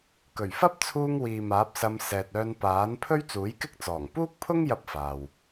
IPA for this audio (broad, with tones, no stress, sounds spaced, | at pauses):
k ɵ˨˩ ɥ f ɐ˥ p̚ t͡sʰ uː˧ ŋ w iː˨ m aː˨˥ p̚ s ɐ˧ m s ɛː˨ t̚ œː˧ n p aː˨˥ n pʰ ɵ˥ ɥ t͡s uː˨˥ j k ɪ˥ k̚ t͡s ɔː˨˩ ŋ p uː˥ k̚ pʰ ʊ˥ ŋ j ɐ˥ p̚ f aː˨ w